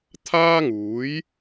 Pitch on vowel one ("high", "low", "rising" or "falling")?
high